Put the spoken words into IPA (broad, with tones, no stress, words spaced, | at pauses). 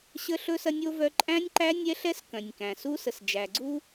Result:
ɕə˦ɬɵ˦sɐ˦nʲ o˦vœ˦ ǃʼæ̃˦nʲǃæ˦ nʲɛ˦ɬɛ˦s kœ̃˨nʲkæ̃˨su˦ sə˨sd͡ʒæ˨ɡ͡ǀu˦